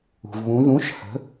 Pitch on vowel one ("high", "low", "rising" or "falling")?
low